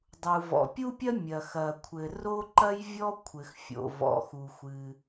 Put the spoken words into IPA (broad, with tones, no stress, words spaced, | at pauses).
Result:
dˤu˩vɔ̰˩pʲu˥pʲɐ˥ mʲɐ˩ xɐ˩kʷʰɘ˩ ro˥ǃɐ˥jvʲɔ˥ kʷʰɘ˩xfʲo̰˩ vɔ̰˩xu˩xʷɨ˩